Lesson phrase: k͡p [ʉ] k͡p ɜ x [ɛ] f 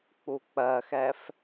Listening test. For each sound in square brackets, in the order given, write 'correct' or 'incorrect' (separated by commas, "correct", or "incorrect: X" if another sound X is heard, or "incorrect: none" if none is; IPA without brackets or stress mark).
incorrect: u, correct